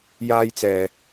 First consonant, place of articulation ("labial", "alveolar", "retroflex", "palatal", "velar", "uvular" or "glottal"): palatal